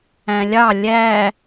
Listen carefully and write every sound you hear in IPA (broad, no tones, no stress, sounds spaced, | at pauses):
æ̃ lʲ ɑ lʲ æ